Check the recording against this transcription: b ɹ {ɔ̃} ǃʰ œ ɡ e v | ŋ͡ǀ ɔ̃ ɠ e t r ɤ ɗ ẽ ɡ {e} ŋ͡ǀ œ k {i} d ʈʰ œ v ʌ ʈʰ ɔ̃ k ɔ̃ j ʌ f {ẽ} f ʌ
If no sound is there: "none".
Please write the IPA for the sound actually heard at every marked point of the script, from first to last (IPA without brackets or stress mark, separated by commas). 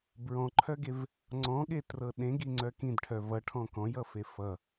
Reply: ɔ̃, i, ĩ, e